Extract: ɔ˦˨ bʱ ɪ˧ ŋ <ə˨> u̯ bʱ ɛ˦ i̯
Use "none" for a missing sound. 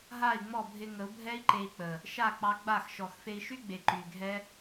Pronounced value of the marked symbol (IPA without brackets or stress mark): ə˨˦